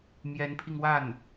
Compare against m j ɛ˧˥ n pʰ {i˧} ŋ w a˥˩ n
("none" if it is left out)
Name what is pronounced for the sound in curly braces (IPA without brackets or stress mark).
i˧